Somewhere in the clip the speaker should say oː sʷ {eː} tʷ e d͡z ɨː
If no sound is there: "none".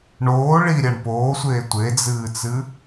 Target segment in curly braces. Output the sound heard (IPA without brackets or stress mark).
eː